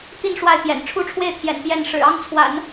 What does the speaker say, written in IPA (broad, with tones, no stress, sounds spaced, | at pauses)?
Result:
t̪ i˥˧ n ʂ w a˥˩ ɪ̯ p j ɛ̰˨˩ n ʈ͡ʂʰ u˥˧ ʈ͡ʂʰ w e˥˩ ɪ̯ t̪ʰ j ɛ̰˨˩ n p j ɛ˥˩ n ʂ ɻ̩˨˩ ɑ˥ ŋ t͡sʰ w a̰˨˩˦ n